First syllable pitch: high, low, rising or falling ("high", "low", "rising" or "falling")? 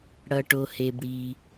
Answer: low